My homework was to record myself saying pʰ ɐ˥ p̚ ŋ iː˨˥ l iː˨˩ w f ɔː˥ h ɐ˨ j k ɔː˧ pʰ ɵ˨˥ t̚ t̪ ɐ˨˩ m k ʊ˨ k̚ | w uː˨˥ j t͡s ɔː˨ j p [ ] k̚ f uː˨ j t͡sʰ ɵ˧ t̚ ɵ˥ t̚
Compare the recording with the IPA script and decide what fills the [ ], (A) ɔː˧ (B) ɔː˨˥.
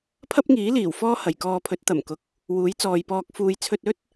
A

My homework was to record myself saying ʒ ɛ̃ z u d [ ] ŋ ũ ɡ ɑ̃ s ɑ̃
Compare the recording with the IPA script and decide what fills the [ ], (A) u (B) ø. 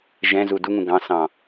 A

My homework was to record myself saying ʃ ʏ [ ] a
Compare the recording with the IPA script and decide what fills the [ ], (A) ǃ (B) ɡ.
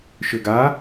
B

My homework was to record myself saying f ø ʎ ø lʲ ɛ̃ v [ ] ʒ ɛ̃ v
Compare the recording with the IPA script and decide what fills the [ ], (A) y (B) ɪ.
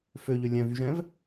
A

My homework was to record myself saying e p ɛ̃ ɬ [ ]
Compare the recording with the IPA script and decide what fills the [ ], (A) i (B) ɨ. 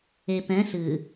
B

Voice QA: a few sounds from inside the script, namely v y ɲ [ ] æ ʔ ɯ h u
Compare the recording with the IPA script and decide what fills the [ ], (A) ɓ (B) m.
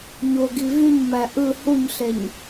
B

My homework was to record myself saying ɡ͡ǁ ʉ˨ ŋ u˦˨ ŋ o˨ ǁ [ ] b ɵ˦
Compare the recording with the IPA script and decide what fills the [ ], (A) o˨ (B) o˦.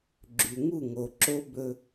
B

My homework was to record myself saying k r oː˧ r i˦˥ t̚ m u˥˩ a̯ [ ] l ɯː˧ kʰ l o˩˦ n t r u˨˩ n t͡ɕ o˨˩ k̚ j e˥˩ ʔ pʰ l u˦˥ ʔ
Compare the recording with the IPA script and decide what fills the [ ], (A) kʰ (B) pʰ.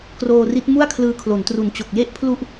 A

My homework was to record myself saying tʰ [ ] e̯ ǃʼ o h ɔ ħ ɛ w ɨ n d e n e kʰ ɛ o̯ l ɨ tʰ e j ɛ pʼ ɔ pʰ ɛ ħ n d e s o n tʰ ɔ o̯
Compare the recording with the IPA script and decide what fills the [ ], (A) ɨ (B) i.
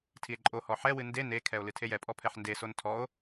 B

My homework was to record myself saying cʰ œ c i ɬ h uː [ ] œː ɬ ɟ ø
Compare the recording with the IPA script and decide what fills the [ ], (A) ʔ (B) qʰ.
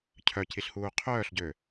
B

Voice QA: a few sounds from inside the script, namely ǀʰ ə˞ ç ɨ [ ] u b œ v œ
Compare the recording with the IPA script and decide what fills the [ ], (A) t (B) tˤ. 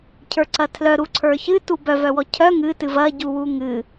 A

